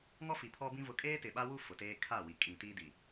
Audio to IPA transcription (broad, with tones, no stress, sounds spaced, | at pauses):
ŋ ɔ˦ f i˨ pʰ ɔ˦ b ĩ˦ v ʊ˨ kʼ eː˦ t ɪ˨ ɓ a˦ w u˦ f ʊ˨ t eː˦ kʰ a˦˨ w i˨ kʼ ĩ˨ t i˦ d i˨